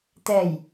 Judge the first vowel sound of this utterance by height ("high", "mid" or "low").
mid